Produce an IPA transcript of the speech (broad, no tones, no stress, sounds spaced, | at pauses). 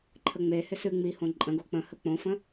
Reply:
ǃʰ ə ŋ͡m e h ɪ s ɨ ŋ͡m i h õ ǃʼ ə̃ ɡ o k͡p ə̃ h ə k͡p õ f ə̃